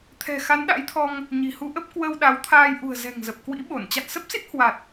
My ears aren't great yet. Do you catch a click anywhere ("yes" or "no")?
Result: no